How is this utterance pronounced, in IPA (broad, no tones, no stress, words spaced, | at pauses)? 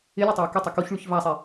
ɪlʲɛtˤei̯ kʏtˤo koçɭyç vasˤe